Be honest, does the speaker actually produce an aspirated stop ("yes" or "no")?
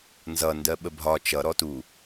no